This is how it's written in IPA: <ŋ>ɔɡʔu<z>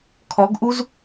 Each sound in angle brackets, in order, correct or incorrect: incorrect: kʰ, correct

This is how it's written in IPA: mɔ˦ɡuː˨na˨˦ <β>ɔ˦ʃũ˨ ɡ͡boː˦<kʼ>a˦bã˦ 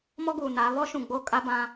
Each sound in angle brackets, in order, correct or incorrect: correct, correct

